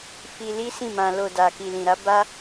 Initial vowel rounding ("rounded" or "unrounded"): unrounded